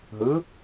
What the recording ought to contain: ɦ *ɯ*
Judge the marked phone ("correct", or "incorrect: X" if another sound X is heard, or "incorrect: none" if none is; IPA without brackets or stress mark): correct